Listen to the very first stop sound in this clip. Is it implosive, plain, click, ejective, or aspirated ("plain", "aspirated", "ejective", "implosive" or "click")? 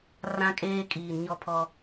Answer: ejective